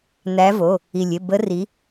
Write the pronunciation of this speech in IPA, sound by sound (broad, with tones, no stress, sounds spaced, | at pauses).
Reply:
n̪ æ˨˦ v o˩˧˩ | i˩ lʲ ɪ˩˧˩ b ə˨˦ r i˨˦